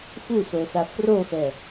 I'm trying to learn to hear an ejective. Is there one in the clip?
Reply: no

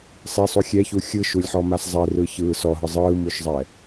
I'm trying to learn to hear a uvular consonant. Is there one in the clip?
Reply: no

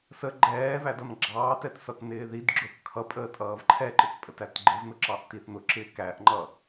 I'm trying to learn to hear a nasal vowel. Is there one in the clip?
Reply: no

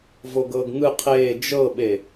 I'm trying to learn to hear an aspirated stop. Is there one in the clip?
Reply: yes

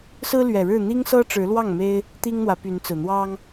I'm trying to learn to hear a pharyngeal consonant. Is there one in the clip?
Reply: no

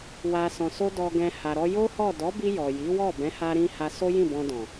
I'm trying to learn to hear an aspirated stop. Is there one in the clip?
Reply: no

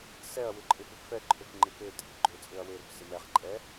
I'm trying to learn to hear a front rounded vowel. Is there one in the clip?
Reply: yes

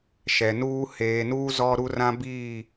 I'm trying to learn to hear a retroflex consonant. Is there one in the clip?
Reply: no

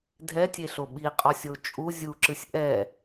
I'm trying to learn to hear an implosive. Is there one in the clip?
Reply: yes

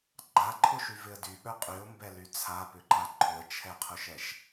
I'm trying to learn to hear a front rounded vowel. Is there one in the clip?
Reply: yes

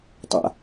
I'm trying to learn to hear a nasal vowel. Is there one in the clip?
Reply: no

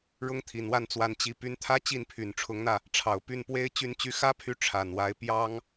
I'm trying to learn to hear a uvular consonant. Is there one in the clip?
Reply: no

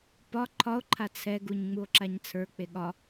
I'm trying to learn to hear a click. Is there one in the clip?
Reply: yes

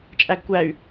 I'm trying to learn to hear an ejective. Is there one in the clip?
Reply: yes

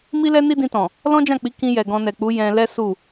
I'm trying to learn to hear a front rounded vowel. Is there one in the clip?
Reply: no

